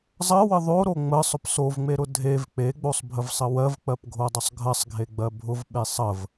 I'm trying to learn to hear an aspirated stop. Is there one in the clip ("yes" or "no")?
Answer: no